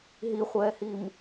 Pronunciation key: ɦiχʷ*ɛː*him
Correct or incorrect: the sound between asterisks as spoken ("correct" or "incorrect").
correct